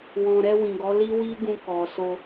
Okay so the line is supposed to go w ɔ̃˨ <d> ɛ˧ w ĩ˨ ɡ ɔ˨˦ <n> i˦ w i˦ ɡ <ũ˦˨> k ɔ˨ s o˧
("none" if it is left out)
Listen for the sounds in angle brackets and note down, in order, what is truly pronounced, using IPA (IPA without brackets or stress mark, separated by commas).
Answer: ɾ, l, ũ˧